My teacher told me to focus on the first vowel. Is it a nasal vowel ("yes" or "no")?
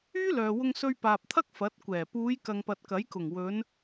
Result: no